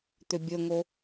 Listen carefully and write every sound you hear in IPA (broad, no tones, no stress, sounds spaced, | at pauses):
t̪ ʏ bʲ ə ŋ o